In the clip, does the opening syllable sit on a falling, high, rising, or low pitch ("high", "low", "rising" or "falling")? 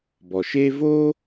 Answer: low